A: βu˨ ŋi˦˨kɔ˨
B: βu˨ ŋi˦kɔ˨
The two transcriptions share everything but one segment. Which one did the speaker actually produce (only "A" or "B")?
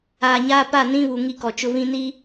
B